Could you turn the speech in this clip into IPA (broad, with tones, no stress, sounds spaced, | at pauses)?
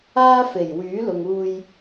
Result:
aː˥ f e˨˩ j w yː˨˥ l ʊ˨ ŋ uː˧ j